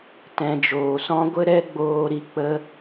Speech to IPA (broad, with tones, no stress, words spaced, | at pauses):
tɛ̃˨d͡ʒoː˨sɔ̃˦ ɡʷə˦ɾɛ˦ ɡ͡boː˧ɾi˧ k͡pə˦